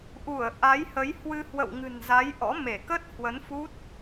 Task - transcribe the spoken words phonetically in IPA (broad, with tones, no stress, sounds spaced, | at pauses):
ʔ u˧˩ ə̯ ʔ a˨˦ j h ə˨˦ j h w ɨ˧ h w ə̰˧˨ w ŋ ɨ̤˨˩ n z a˨˦ j ʔ ɔ̰˧˥ m e˧˩ k ə˦˥ t̚ h w ə˨˦ n f u˦˥ t̚